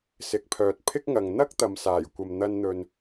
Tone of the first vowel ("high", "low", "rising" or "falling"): rising